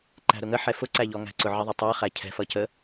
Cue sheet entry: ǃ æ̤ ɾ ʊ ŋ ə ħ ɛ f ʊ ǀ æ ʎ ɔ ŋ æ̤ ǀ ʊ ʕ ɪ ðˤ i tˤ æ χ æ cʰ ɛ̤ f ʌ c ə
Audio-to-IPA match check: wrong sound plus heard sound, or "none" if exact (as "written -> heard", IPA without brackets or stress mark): none